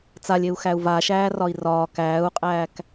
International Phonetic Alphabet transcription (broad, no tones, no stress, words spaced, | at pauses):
t͡salʲeu̯xæu̯ vaʃæːrɒi̯ rɒː kæːu̯qʼæːk